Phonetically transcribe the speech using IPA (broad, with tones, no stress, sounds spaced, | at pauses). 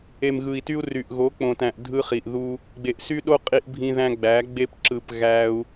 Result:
e˨ m ɣ ɯ˨ i̯ t y˧ u̯ r y˨ ʔ ɣ o˨˦ k͡p õ˨ t æ̃˨ ʔ dʱ ɯ˦ χ i˨ ʔ ð u˦ | ɡ͡b e˨ ʔ s y˦ ɗ o˦ qʼ i˧ ʔ bʱ ĩ˧ ð æ̃˧ ɡ͡b æ˨˦ ɡ͡b e˧ p ǁ ɯ˨ p ɣ æ˧ u̯